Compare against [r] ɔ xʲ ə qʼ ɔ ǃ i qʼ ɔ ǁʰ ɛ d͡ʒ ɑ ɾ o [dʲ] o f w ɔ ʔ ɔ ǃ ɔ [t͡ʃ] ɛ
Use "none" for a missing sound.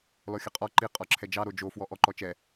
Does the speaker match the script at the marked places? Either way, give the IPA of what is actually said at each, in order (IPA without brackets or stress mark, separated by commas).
l, d͡ʒ, t͡ʃ